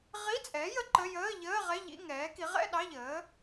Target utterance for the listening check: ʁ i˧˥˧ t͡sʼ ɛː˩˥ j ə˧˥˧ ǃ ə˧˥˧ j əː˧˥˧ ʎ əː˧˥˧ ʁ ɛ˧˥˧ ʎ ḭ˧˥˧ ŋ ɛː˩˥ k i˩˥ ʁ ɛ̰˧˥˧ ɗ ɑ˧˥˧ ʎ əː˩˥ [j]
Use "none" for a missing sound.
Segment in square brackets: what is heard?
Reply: none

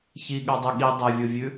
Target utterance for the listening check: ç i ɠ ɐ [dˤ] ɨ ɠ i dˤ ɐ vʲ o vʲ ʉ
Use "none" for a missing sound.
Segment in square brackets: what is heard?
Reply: dˤ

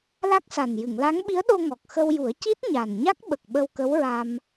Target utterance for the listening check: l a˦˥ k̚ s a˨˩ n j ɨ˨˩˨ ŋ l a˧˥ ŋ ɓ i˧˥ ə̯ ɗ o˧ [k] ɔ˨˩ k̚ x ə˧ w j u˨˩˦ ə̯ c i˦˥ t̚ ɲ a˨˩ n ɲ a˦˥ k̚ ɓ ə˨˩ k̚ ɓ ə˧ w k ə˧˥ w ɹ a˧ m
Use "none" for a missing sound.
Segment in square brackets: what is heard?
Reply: ŋ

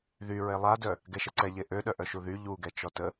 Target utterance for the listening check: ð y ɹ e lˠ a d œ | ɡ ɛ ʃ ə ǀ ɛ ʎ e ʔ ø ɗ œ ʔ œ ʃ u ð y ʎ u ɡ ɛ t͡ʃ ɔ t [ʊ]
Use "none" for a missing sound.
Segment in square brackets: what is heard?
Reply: ə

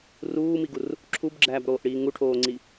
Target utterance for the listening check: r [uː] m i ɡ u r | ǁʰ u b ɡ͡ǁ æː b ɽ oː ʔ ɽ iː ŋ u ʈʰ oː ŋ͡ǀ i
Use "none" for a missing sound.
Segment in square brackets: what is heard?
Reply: uː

